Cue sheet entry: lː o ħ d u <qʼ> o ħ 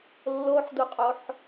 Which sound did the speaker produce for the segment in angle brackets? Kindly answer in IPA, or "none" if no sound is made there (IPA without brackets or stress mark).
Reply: qʼ